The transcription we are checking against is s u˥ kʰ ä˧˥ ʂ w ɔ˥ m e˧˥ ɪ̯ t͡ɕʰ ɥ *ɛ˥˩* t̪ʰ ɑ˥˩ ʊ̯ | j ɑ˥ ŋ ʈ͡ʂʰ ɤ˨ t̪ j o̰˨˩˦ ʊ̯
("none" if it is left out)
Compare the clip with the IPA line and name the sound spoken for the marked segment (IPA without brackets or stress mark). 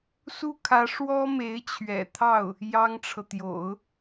ɛ̰˨˩